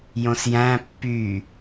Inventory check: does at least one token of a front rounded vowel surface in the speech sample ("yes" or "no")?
yes